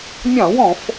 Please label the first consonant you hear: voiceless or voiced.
voiced